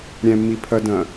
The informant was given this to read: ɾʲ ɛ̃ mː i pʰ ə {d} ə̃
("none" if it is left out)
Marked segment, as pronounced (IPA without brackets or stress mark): d